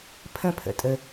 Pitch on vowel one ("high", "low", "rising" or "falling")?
high